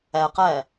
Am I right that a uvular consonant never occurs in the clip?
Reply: no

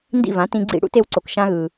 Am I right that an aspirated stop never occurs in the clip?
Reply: yes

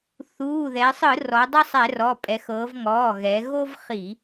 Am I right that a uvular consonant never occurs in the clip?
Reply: no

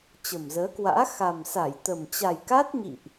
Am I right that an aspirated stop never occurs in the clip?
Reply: yes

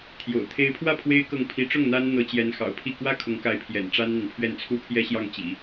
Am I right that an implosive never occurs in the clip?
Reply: yes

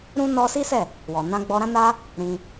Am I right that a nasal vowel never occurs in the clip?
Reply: no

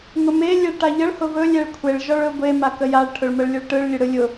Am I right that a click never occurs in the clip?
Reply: yes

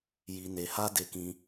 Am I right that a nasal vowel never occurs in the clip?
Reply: no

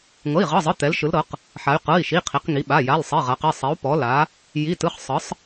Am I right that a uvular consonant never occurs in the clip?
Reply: no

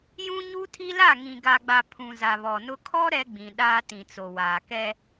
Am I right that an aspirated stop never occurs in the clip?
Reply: no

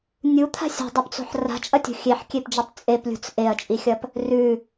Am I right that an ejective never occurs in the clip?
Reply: no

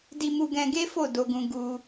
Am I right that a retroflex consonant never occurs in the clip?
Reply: yes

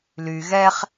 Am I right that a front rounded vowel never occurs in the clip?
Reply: no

